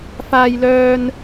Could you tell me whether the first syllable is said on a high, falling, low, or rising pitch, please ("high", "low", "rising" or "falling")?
high